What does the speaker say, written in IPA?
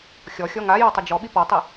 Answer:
xʲ ɔ xʲ ɔ ŋ a j ɔ tˤ ɪ d͡ʒ ɔ ɓ i p ɔ tˤ i

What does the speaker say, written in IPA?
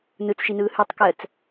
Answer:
n ɯ t͡s ʃ i n ɯː h ʉ tˤ k ɜ t͡s

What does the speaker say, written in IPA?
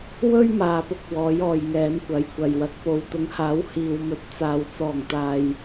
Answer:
w ɵ˥ ɥ m aː˨ p ʊ˧ k̚ w ɔː˨˥ j ɔː˨ j ŋ ɛː˨˥ m kʷ ɐ˨˧ j kʷ ɐ˨ j w ɐ˨˥ k̚ p o˨ w t̪ ʊ˨˥ ŋ h aː˨˥ w h iː˨ w m ɵ˨˥ t̚ t͡s aː˨ w t͡s ɔː˨˩ ŋ t̪ aː˨ j

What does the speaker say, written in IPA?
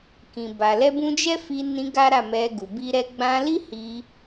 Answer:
k ĩ˨ b a˨ l ɛ˧ b ũ˧ d͡ʒ ɛ˦ f i˧ n ĩ˧ ɡ a˦ ɾ a˦˨ m ɛ˧ ɡ u˨ b i˧ ɾ ɛ˧ ɡ͡b ã˧ l i˦ h i˧

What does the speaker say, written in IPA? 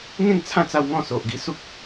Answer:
ŋ ẽ˥˧ ŋ t͡sʰ ã˥˧ t͡s a˧ w ŋ ɔ̃˥˧ s o˨ ʔ ɡ i˧ s u˦ k̚

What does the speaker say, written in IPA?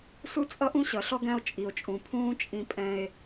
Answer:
s u˦ t͡sʼ ʌ˦ ʔ ũ˦ ɕ ʌ˨˦ ɬ ɔ˦ ɡ æ̃˦ o̯ t͡ʃʼ i˨ o̯ t͡ʃʼ ũ˨ pʰ ũː˦ t͡ʃʼ ĩ˦ pʼ ɛ̃˦ e̯

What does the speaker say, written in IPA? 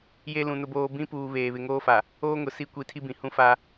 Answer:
j e˦ l ũ˨ n ʊ˦ b oː˦ b ĩ˦ p uː˨ β eː˨ β ɪ˨ ŋ oː˦ f a˨ | oː˦ ŋ ʊ˨ s i˦ kʷ i˨˦ tʰ i˦ b ĩ˨ h ũ˦ f a˦

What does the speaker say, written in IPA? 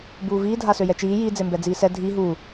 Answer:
b uː v iː dʱ a s ø j ɛ t͡ʃ iː j i d͡z e m b ɛ d͡z iː s ɛ dʱ i ɦ uː

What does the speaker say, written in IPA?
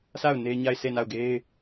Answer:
s a˦˨ ʊ̯ n e˦ ɲ a˦˨ ɪ̯ sʰ e˦˨ n a˦˨ ʊ̯ ɡ e˦ ɪ̯

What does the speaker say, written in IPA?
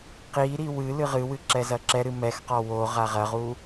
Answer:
q i ɾ i w ɨ l ɨ ʁ ɨ w ɨ ǁ ɛ z ɐ ǁ ɛ ɾ ɨ m ɛ x q ɔ w o ʁ a ʁ ɐ ʁ u

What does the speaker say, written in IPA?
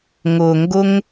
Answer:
ŋ ʊ˨ ŋ ɡ ʊ˦ ŋ

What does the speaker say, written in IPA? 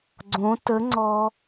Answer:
ɡ͡ǀ õ t ə ŋ͡ǀ ɔ

